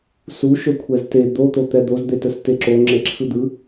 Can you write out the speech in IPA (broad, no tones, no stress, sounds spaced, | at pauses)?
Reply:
s u ʃ ɵ kʷʰ ɛ z t e d̪ o t̪ o t̪ ɛ d̪ o z d̪ e t ɵ s t e ǁ o ŋ͡ǁ e ǁʰ ɯ d̪ ɯ